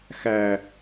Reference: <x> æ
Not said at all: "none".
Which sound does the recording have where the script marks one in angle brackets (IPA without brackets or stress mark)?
x